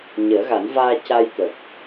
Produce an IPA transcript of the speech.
ɲ əː˨˩˦ ɣ a˨˩˦ n v aː˧ c a˧ j t̪ ə˨˩ k̚

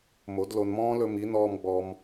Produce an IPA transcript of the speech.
m o˨˦ d l o˧ n m ɔ̃ː˦ l ɵ˧ m i˨˦ n ɔː˧ m ɡ͡b ɔ˧ m

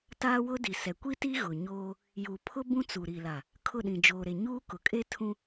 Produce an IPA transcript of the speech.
t aː˦ w ʊ˦ d i˨ s ɛ˨ kʷ i˦ t i˦ ɣ ʊ˨ ɲ oː˦ | j u˨ pʰ ʊ˦ b ũ˦ t͡s u˨ ɾ i˨ l a˨ | kʰ ʊ˦˨ ɗ ĩ˨ d͡ʒ oː˨ ɾ e˨ ɲ uː˦ k ʊ˨ kʼ e˦ tʰ ũ˦

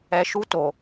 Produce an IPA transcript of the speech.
ɛ˨ ʃ u˧ t o˨

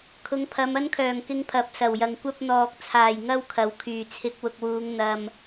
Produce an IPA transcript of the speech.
kʰ ʊ˨˧ ŋ pʰ ɐ˨˧ m ɐ˥ n kʰ œː˨˩ ŋ k ɪ˧ ŋ pʰ ɐ˨ p̚ s ɐ˨˩ w j ɐ˨ ŋ kʷ ɐ˧ p̚ n̪ ɔː˨ k̚ t͡sʰ aː˨˩ j ŋ ɐ˥ w kʰ ɐ˨ w kʰ yː˨˩ t͡sʰ ɪ˨˥ k̚ w ʊ˨ k̚ w uː˨˧ ŋ n̪ ɐ˨ m

